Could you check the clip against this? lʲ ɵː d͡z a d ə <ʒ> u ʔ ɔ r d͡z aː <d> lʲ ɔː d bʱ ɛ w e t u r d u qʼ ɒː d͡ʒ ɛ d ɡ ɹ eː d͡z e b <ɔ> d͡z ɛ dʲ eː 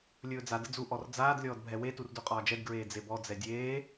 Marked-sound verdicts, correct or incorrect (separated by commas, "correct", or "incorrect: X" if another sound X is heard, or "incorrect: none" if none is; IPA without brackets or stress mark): incorrect: d͡z, correct, correct